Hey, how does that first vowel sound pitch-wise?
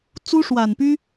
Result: high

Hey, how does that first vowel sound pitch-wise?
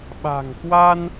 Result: low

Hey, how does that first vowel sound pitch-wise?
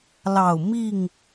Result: low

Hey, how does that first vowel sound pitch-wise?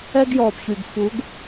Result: high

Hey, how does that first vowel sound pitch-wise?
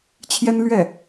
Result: high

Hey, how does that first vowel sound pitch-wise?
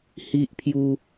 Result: high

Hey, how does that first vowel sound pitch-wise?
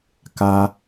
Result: high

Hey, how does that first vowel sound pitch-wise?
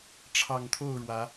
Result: low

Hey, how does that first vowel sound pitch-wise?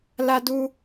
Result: high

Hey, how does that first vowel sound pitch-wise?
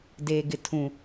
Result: low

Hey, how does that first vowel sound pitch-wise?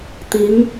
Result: rising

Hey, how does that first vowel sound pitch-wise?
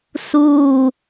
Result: falling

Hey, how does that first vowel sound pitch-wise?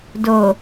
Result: low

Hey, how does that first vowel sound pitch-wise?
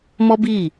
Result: high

